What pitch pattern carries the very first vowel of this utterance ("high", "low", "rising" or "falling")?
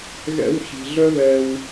high